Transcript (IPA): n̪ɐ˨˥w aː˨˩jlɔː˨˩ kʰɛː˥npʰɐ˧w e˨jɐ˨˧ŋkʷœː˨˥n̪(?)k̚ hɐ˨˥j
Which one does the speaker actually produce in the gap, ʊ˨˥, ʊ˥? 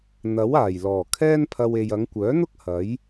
ʊ˥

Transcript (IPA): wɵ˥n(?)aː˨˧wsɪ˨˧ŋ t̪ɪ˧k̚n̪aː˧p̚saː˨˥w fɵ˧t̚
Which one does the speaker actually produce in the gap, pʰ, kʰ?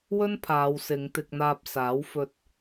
pʰ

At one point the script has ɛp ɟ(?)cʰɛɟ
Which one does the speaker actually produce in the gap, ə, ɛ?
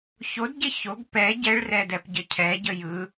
ə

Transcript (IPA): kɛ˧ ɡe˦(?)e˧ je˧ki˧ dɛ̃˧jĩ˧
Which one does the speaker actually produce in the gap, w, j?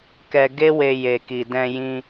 w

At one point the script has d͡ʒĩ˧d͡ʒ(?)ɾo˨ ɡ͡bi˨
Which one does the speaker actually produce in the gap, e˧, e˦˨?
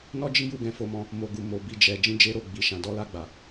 e˧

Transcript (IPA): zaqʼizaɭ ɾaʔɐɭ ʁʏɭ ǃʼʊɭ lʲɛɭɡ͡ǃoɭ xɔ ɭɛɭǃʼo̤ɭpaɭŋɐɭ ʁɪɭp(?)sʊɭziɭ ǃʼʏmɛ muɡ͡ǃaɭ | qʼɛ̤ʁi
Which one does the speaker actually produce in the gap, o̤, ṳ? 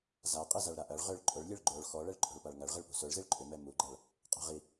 ṳ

